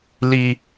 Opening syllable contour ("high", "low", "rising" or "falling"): low